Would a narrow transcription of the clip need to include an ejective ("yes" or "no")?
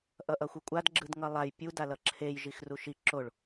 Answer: yes